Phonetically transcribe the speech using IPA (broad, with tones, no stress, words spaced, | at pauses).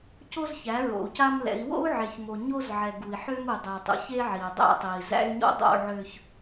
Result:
co˦zçæ˨˦ ɹo̰˨u̯ca˦mlɛ̰˨˦i̯ wo̰˦u̯ʕe˨çmo˨ ɲo˦z ʕɛ˨ ɡu˨i̯ ħø˦mu˨ dˤæ˨tˤṵ˨çe˦ ʕi˨u̯dˤæ̰˦tˤe˨i̯ zæ̰˦y̯ɲo̰˦ dˤo̰˦˨ʕø˨ç